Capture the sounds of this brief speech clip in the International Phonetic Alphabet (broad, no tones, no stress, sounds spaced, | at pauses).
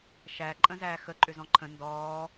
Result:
ʃ æ ǃʼ ə̃ z æː x ə ǃʼ ʏ z ɔ̃ ǃʰ ə̃ n d ɔː